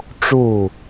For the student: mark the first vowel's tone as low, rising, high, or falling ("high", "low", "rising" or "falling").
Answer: falling